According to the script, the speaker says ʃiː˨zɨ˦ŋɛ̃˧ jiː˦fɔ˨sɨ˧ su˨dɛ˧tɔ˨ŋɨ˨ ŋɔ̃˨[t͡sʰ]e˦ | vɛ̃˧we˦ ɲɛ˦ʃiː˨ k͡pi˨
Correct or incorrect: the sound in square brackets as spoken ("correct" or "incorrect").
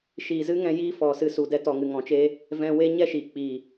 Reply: incorrect